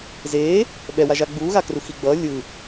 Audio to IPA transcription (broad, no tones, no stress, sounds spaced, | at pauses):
z eː | ɓ ɛ w a ʒ a ɡ͡b uː ɣ a k r u x i ɡ͡b ʌː lʲ ɯ